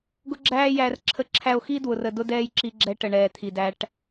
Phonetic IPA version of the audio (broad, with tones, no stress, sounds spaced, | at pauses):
ɡ ʊ˦ ɡ͡ǁ æː˦ j æ˧ r ǁʰ ə˦ ǁʰ æ˦ o̯ x i˦ d w ʊ˧ r ə˧ d ʊ˦ d ɛː˦ j ǁ i˧ ɡ͡ǁ ɛ˧ ʈ ə˨ ɳ ɛː˨ t̪ʰ i˨ d æ˧ ʈ